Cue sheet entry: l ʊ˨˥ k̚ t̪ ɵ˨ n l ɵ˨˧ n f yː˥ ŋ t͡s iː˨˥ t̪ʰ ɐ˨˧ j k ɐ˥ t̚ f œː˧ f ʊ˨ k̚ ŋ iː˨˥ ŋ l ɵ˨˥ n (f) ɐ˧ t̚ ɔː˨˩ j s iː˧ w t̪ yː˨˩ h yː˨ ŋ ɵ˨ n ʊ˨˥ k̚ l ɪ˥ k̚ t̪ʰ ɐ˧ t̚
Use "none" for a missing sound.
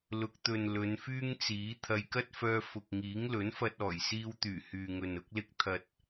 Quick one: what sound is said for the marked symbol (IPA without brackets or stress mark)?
f